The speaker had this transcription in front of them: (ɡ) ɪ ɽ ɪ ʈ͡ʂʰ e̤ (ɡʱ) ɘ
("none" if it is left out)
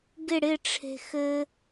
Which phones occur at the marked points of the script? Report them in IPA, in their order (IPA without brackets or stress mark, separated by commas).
ɡ, x